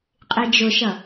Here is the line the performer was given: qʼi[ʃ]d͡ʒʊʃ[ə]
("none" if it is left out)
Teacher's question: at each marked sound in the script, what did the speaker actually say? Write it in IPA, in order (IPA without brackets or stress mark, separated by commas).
none, ʌ